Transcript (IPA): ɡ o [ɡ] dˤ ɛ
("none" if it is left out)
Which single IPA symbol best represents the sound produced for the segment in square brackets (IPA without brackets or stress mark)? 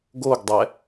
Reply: ɡ